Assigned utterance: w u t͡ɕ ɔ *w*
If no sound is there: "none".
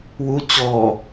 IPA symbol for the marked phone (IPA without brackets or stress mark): none